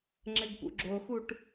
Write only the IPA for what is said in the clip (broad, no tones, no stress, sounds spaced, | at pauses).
ŋ͡ǁ ɘ ɡ p ṵ ɡ͡ǁ o x u ʈ